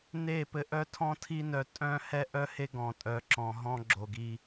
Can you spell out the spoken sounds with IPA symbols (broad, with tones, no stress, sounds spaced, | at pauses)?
n e˦˨ p ɘ˧ ʔ œ˦ tʰ ɔ̃˦ tʰ i˦ n œ˧ tʼ œ̃˦ h ɛ˦ ʔ œ˦ h e˦ ɡ ɔ̃˨ tʼ œ˨˦ ǁ ɔ̃˨ ɦ ɔ̃˦ ɡ͡ǁ o˨ ɡ i˧